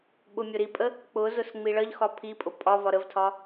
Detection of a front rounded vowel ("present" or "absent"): absent